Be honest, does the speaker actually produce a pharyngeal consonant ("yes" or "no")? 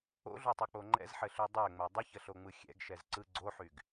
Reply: yes